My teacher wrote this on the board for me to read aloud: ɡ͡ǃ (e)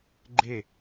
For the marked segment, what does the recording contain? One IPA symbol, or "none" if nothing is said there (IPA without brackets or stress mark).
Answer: e